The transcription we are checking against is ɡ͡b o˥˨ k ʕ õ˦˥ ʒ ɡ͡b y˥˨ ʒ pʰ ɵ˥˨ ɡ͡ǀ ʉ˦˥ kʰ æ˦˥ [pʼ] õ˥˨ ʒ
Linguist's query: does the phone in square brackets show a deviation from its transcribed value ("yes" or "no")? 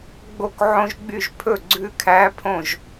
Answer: yes